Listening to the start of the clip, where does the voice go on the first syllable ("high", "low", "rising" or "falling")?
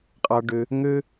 low